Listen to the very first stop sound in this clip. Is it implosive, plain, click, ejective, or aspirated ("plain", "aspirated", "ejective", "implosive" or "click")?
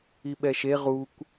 implosive